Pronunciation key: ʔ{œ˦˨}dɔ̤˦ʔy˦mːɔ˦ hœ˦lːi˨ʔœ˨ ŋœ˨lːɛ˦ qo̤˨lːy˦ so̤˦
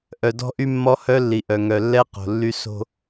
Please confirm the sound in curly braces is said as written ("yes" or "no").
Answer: no